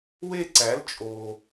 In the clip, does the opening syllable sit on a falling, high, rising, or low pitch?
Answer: falling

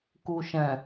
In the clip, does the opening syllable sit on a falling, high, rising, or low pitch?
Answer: low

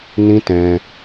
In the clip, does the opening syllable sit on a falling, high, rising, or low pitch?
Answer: high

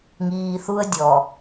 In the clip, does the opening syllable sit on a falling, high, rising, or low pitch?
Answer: low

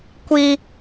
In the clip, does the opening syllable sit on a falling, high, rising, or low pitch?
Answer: high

